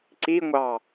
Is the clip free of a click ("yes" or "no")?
no